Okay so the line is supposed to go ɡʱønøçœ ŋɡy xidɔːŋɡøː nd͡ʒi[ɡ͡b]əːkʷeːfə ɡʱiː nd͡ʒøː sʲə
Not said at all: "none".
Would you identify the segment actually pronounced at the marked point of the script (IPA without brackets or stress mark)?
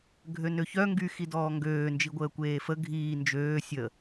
ɡʷ